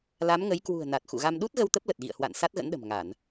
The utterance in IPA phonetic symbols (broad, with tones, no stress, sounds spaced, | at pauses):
l a˨˦ m ŋ ə˨˦ j k w ṳ˨˩ ə̯ n a˨˩ t̚ x ṵ˧˨ ɣ a˧ m ɗ u˦˥ t̚ ɣ ə˧ w t̪ ə˦˥ p̚ l ə˨˩ t̚ ɣ ḭ˧˨ ə̯ h w a̰˧˨ n s a˦˥ t̚ ɣ ə̰˧˥ n ɗ ə̤˨˩ m ŋ a˧˩˨ n